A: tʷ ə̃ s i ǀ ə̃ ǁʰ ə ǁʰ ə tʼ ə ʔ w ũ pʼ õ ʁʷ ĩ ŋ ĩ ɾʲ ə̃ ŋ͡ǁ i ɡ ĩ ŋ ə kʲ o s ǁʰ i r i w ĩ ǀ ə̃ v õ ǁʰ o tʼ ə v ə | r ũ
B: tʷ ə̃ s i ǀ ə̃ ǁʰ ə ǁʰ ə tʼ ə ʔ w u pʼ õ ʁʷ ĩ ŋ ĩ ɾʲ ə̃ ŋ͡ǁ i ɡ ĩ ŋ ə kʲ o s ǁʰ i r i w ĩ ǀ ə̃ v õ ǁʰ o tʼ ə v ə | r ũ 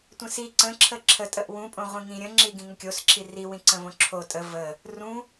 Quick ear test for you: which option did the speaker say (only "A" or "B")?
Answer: A